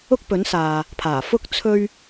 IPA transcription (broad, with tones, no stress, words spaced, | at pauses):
ʊ˥k̚pɵ˨˥nsaː˨ | pʰaː˨˩ fʊ˧k̚ t͡sʰɵ˥ɥ